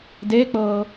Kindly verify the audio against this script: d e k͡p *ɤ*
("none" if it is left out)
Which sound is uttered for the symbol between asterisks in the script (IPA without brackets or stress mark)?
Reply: ɤ